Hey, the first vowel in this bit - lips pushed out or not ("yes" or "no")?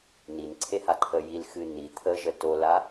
no